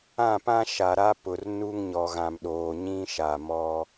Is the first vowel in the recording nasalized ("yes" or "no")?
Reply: yes